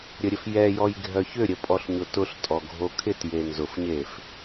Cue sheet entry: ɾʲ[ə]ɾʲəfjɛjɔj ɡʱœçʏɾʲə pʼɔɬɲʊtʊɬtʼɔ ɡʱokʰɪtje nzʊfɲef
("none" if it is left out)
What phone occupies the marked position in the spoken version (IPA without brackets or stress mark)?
ə